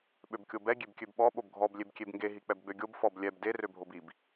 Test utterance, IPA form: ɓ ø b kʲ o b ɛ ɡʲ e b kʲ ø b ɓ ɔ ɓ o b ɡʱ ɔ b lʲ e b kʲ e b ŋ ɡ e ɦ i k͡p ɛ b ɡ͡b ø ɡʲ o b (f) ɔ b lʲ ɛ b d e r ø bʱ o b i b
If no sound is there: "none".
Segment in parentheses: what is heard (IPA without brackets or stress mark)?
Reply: f